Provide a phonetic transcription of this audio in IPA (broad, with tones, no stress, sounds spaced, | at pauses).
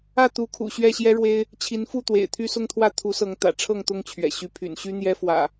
ä˥˨ t̪ u˨˦ kʰ ṵ˨˩ ɕ ɥ ɛ˥˨ ɕ j ɛ˦ ɻ w e˦ ɪ̯ | t͡ɕʰ i˨˦ n f u˥˨ t̪ w ḛ˨˩ ɪ̯ t̪ʰ y˦ s ʊ˦ ŋ t̪ʰ w ä˥˨ t̪ʰ u˨˦ s ɤ˨˦ ŋ t̪ ä̰˨˩ ʈ͡ʂʰ ɤ˥˨ ŋ t̪ ʊ˥˨ ŋ t͡ɕʰ ɥ ɛ̰˨˩ ɕ y˨˦ pʰ y̰˨˩ n ɕ y˦ n̪ j ɛ˦ f w ä̰˨˩